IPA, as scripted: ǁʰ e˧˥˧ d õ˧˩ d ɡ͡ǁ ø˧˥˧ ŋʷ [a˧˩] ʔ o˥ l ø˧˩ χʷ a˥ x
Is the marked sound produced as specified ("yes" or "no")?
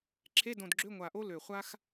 yes